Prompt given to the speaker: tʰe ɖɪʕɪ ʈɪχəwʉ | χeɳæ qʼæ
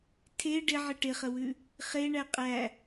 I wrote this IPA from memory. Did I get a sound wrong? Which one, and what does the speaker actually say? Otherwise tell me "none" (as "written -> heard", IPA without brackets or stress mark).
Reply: none